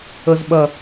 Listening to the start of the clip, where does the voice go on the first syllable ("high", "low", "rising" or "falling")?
low